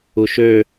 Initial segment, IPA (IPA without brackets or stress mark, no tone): u